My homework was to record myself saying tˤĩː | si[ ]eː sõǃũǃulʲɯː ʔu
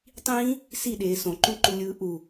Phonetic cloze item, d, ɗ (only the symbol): ɗ